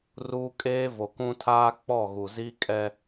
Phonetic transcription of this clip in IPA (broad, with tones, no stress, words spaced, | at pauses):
ruː˦ kʼeː˦vo˨ kũ˦tʰaː˦ k͡pɔ˦˨ɣu˨zi˦ kʼɛ˦